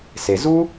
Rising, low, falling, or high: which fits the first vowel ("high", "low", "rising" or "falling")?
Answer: low